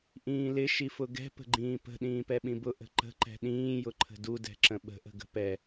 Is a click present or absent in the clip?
present